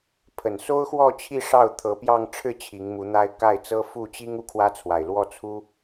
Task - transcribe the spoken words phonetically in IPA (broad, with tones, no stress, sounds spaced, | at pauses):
pʰ ə˨˩ n s o˥ ʊ̯ x w ɔ˥˧ t͡ɕʰ i˥˧ ʂ ɑ˥˩ ʊ̯ t̪ʰ ɤ˧˥ p j ɑ˥˧ ŋ ʈ͡ʂʰ ɻ̩˥˩ t͡ɕʰ i˧˥ ŋ m u˧˥ n̪ a˥ ɪ̯ k a˥˩ ɪ̯ t͡s ɤ˥ f u˥˩ t͡ɕ i˥ ŋ u˥˩ kʰ w ä˥ t͡sʰ w a˨˩ ɪ̯ l w ɔ˥˩ t͡sʰ u˥